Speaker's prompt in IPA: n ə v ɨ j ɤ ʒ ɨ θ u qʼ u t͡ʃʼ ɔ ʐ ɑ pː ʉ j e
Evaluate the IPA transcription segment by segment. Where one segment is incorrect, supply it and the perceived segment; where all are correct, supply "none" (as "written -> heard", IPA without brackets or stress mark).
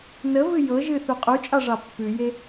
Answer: ɔ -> ɑ